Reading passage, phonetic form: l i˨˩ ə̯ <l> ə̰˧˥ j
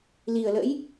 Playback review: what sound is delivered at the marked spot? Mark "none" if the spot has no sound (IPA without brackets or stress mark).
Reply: l